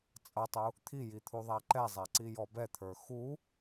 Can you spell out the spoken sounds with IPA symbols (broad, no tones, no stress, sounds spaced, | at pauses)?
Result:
t͡sʼ ʌ tˤ u | t̪ʰ i j i t̪ʰ u ðˤ æ ǃ ɛ zˤ æ ǀ i j ɔ b ɛ t̪ʰ ə˞ x u